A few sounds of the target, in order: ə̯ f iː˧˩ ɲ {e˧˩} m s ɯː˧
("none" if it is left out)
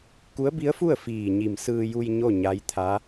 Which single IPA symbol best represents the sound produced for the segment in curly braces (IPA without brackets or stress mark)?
i˧˩